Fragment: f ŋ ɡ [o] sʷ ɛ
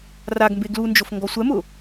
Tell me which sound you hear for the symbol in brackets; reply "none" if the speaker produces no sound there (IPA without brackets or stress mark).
ɔ